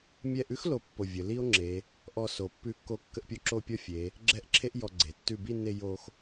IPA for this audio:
mʲ ɛ˧ ʔ ʉ˥ x l o˥˧ pː o˧˩ vʲ ə˩˧ l i˥ o̯ ŋ͡ǁ e˩˧ | ʔ ɔ˧ s o˩˧ pː ʉ˧ kː o˧ kː ə˥˧ ʔ pʲ o˥˧ ǁ o˥˧ pʲ ɔ˥ fʲ e˩˧ | ɡ͡ǁ ɛ˥˧ ʔ ǁʰ e˥ ʔ j ɔ˧ ɡ͡ǀ e˩˧ tː ʉ˧˩ b i˥˧ nː e˧ j o˧ x

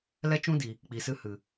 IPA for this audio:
l ɛ˦ t͡ʃ ũ˦ d i˨ | k͡p i˨ s ɨ˦ h ɨ˨

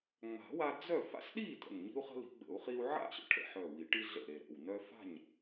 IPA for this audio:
ŋ͡m a̤˨˩˦ w a˦ d͡z œ˥˨ f a̰˦ s ɗ i˥˨ t ə̰˧˩ n ɲ i̤˦ u̯ χ ə̤˦ l i̤˨˩˦ ɡ͡b ə̰˨˩˦ u̯ χ i˦ u̯ ʕ a̰˥˨ ɕ ə̰˦ ʈʰ ə̰˧˩ ħ œ˧˩ w i˨˩˦ ʈ i˦ ɮ ə̰˧˩ ɾ e˧˩ ɾ ə̰˧˩ w n œ˦ f a̤˥˨ ɲ

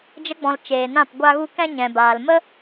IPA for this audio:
d͡ʒ ə˧ ɡ͡b ɔ̃˨ l t͡ʃ eː˨ n ã˦˨ p ɡʷ a˦ ɣ u˦ k ɛ̃˦ ɲ ɛ̃˨ b aː˨ l m ə˦

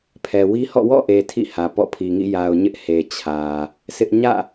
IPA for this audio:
pʰ ɛ˨ w i˦ h ɔ̰˦˨ w ɔ̰˦˨ ʔ e˨ tʰ ḭ˦˨ h ä˨ p ɔ̰˦˨ pʰ i˨ ŋ ḭ˦˨ j a˨ ʊ̯ ɲ ɪ˦ ʔ h e˨ t͡ɕʰ ä˨ | s ɪ˦ ʔ ɲ ä̰˦˨

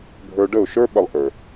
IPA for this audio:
bʱ ə˞˦ ɖ ə˦˨ ʊ̯ ʃ ə˞˦ ɓ ə˦ lˠ ʔ ə˞˨

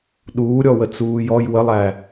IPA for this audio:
ɗ uː ɾʲ ɔ w ə t͡s uː j ɔ j w ə lˠ æ

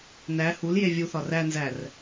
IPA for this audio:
n æ h u l j e vʲ u θ ɒ r æ n z æ r

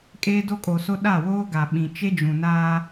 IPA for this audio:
kʼ eː˦ d o˦ kʼ o˨ s o˦ ɗ a˦˨ w oː˦ ɡ a˨ ɓ ĩ˨ t͡ʃ e˦ d͡ʒ ũ˨ n aː˦

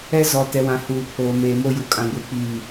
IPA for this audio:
ɛ˦ z ɔ˨ t ɛ˨ w ã˨ h uː˨ pʰ oː˨ m eː˨ m o˦ j u˨ kʼ ã˦ ɡʷ i˦ k͡p iː˦˨

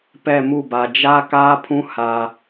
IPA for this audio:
p ɛ˦˨ m u˦˨ b a˨ d͡ʒ a˦ k aː˦ pʰ ũ˦ h a˦

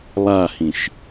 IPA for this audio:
lˠ a h ĩ ʃ

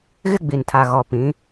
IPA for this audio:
ɣ ɪ˦ ɡ͡b i˨ n tʰ a˨ ɣ ɔ˨ p ĩ˨˦

